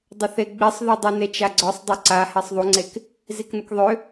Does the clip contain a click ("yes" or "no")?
yes